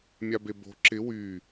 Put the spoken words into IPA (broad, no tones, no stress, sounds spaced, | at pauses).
mʲ a b e b o̤ ǁ ɪ w y